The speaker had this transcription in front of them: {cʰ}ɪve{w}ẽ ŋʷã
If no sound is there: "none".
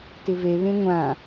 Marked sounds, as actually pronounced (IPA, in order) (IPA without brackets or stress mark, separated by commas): t, β